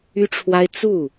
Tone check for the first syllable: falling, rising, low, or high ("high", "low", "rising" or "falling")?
high